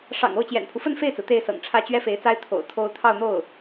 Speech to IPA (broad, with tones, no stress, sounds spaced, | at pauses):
ʂ ɑ̰˨˩ ŋ o˥˩ ʊ̯ t͡ɕ j ɛ̰˨˩ n pʰ u˦ f ə˥ n f e˥˩ ɪ̯ t͡s ɹ̩˩ t̪ e˥˩ ɪ̯ s ɤ̰˨˩ ŋ ʈ͡ʂʰ ä˥ t͡ɕ ɥ ɛ˥ f e˧˥ ɪ̯ t͡s a˥ ɪ̯ t̪ʰ o̰˨˩ ʊ̯ t̪ʰ o˥ ʊ̯ t̪ʰ ɑ˥˧ ʊ̯ n̪ o˥˩ ʊ̯